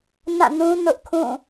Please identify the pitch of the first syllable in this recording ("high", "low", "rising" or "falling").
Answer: falling